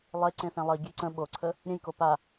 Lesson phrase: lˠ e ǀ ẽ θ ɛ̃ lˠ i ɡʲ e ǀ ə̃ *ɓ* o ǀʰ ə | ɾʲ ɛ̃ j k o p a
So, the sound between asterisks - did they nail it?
yes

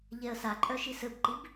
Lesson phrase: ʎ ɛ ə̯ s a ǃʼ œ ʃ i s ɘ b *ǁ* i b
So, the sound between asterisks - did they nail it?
no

